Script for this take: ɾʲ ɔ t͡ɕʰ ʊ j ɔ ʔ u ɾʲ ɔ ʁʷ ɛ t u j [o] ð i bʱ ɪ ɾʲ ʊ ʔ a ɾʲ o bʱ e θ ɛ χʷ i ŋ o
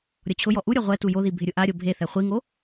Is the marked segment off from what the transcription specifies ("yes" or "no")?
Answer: no